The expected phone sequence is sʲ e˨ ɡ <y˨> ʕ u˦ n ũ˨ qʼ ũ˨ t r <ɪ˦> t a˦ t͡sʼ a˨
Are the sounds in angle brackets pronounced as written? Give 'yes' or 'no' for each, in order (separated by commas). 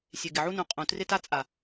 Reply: no, yes